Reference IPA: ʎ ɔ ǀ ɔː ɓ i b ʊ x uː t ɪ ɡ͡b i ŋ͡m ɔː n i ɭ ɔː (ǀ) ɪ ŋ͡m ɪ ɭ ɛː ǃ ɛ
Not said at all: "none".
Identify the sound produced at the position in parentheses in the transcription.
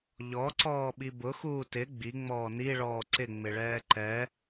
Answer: ǀ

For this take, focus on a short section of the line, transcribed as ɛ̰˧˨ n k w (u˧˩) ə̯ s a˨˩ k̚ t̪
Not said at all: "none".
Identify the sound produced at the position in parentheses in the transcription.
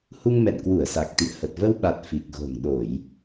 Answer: u˧˩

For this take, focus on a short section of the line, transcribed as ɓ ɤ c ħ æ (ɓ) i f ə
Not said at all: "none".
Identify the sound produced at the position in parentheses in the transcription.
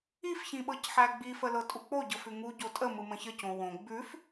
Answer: ɡ͡b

